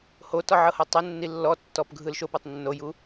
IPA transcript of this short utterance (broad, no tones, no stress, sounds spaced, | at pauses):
h o t ɔ ʕ ɤ h ɤ tˤ ɛ nː i lː ɔ tː ɔ p ɡʱ ɯ l ʃ o p ɤ tˤ nː o j u